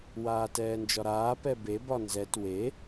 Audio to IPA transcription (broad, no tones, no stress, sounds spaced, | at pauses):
w aː t ɛː n d͡ʒ ɒ ɾ aː p ɛ b e b ɒ n z ɛ t w e